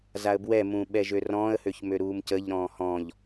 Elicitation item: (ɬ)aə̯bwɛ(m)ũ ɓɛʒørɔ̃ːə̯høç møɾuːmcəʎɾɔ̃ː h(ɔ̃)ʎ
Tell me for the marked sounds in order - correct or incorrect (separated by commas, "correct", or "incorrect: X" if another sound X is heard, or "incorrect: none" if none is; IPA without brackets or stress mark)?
incorrect: z, correct, correct